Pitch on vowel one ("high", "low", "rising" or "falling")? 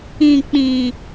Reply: low